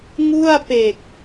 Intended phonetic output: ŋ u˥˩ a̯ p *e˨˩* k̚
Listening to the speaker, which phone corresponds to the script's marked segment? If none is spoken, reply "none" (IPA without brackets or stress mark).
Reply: e˨˩